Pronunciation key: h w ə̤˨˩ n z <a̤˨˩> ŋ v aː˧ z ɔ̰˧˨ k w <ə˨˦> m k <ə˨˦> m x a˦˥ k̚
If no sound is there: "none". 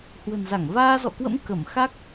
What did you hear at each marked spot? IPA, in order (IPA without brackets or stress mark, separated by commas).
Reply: a˧˩, ə̰˧˥, ə˧˩